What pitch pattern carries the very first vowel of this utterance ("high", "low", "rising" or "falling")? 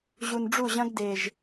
low